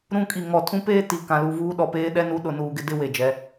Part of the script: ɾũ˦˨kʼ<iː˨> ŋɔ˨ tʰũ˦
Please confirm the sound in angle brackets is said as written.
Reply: no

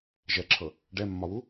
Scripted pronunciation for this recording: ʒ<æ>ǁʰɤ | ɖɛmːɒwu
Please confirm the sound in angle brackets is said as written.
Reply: no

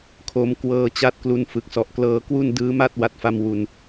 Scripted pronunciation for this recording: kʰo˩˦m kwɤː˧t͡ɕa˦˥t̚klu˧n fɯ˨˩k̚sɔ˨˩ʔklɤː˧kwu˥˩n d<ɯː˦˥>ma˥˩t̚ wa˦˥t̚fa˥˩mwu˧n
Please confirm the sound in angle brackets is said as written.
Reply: yes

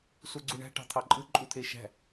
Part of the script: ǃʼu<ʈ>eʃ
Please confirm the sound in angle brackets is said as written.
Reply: no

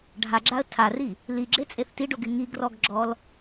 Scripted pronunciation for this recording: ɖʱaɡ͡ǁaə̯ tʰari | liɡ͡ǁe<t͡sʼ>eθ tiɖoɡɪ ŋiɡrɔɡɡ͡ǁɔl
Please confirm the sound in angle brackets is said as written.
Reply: yes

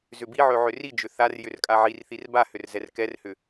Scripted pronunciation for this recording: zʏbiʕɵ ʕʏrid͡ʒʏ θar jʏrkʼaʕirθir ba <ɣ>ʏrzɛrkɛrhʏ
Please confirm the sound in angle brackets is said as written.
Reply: no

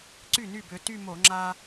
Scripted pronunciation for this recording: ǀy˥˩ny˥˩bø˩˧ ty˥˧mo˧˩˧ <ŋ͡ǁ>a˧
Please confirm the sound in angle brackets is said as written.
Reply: yes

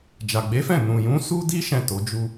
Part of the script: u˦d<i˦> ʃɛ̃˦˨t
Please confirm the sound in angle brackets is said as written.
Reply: yes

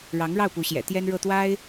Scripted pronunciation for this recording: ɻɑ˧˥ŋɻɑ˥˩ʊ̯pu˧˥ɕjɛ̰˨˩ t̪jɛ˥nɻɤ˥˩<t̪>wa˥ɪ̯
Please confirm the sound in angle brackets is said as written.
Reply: yes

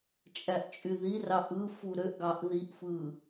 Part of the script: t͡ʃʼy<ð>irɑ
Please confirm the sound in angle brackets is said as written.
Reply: yes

